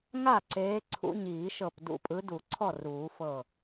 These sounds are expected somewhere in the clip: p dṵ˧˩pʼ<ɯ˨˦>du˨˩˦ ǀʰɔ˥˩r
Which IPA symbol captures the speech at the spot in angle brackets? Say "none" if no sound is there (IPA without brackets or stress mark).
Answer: ɯ˨˦